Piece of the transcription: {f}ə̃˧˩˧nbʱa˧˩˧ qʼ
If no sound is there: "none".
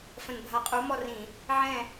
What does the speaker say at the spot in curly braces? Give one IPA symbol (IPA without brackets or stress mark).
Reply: f